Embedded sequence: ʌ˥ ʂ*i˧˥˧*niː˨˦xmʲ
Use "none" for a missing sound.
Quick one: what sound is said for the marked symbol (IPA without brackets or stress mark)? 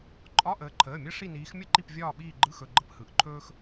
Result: i˦˨